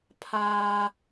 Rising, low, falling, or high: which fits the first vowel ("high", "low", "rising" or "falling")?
high